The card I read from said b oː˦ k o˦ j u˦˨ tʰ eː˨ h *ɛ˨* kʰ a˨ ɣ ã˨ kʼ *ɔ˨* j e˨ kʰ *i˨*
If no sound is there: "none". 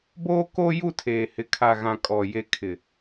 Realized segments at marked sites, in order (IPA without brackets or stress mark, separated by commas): ɪ˨, ɔ˨, ɪ˨